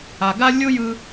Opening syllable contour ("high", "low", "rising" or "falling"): low